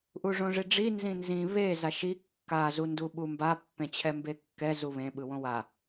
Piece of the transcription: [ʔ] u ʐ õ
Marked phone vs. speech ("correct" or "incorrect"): correct